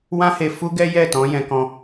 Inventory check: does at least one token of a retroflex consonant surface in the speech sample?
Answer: no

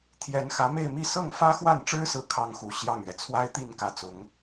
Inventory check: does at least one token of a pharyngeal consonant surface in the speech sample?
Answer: no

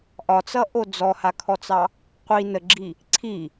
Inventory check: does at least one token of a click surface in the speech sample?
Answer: yes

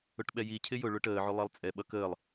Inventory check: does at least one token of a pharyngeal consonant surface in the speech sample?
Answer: yes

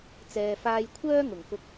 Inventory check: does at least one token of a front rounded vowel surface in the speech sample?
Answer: yes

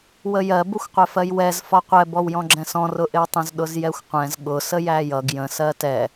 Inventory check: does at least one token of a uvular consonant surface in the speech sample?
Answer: yes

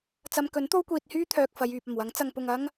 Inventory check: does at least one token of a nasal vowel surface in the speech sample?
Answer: no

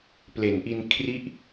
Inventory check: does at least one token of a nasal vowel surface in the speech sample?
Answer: no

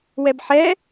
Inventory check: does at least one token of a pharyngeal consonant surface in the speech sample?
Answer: yes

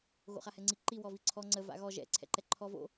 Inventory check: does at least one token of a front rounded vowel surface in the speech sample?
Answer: no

